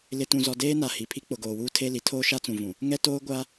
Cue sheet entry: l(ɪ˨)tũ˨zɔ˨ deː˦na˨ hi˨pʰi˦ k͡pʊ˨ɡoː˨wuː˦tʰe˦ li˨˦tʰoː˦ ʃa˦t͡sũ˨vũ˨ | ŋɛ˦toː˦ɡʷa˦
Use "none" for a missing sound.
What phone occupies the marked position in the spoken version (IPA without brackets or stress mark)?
ɪ˨